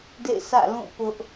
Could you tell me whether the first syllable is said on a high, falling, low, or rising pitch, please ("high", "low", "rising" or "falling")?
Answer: falling